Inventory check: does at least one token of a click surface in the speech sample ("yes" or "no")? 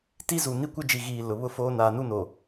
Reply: no